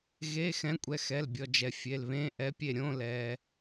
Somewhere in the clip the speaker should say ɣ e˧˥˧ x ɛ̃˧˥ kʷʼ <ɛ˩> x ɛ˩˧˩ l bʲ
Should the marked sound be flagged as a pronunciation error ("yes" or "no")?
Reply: yes